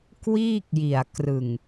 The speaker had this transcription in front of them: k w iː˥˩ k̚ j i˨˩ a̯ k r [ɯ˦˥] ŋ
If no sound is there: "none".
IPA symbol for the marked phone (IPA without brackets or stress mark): ɯ˨˩